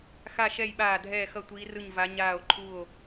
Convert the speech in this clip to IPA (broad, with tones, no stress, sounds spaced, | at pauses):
x a˥˨ ʃ ɛ˥˨ j ɓ aː˥˨ dʱ ɛː˥˨ x ʌ˥˨ tʷ iː˧˥ r ɯ˥˨ ɲ v a˧˥ ɲ aː˥˨ o̯ ǃʰ u˥˨ o̯